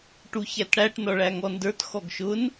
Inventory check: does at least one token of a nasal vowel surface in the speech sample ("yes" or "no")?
no